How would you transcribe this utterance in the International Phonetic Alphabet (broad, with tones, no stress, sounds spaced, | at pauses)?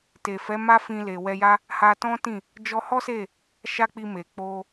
t e˨ f ɛ˨˦ m a˦ f ĩ˧ l e˨ w ɛ˧ j a˦ | h a˧ t ɔ̃˦ t ĩ˦˨ | d͡ʒ ɔ˧ h ɔ˦ s e˦˨ | ʃ a˦ k͡p i˧ m e˨ k͡p o˧